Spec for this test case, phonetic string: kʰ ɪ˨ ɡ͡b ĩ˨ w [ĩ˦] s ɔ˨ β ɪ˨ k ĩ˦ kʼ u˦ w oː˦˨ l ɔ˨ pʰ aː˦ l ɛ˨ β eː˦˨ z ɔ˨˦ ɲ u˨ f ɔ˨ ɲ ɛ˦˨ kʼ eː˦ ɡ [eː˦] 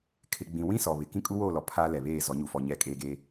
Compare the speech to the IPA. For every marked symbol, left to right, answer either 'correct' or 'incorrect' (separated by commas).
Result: correct, correct